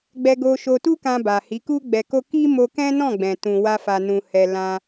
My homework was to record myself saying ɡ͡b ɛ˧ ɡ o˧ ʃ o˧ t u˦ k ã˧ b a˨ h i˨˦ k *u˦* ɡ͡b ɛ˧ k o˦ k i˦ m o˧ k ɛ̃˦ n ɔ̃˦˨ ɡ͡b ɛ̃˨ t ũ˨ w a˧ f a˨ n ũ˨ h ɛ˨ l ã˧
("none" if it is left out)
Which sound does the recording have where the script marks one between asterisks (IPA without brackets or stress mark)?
u˦